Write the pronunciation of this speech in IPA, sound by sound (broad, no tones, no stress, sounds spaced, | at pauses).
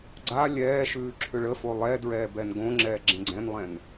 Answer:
ɡ͡ǀ a lʲ ɛː ʃ ʉː ǁʰ ʏ ɭ ə f o lˠ ɛ d ɹ ɛː b ɛ n ɡ õ ŋ͡ǁ ɛː ɡ͡ǁ ẽ ɡ͡ǀ ɛ̃ n lˠ ɛ̃ n